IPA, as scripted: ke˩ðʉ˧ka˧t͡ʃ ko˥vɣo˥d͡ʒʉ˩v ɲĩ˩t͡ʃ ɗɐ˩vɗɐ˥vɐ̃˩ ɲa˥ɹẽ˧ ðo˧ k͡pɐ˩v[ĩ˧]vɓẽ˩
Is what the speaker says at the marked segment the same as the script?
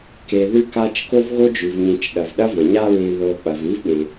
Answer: no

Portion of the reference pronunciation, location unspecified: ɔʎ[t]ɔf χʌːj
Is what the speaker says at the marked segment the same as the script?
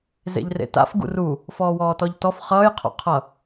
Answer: yes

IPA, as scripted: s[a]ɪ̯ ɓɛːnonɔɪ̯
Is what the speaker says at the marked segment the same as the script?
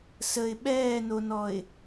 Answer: no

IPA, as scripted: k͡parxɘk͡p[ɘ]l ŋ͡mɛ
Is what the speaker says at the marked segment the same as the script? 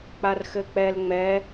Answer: no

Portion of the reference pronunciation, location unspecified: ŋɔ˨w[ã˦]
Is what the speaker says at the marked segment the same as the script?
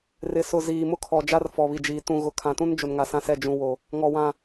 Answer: no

